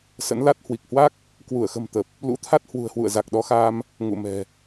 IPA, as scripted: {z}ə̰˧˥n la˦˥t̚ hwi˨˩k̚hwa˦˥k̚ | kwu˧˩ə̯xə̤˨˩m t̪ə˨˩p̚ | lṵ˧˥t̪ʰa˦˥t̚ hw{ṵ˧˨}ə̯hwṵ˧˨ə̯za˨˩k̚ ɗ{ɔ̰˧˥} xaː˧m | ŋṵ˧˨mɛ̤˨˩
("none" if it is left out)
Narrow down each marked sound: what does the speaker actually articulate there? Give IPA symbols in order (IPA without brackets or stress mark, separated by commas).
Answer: s, ṳ˨˩, ɔ˨˦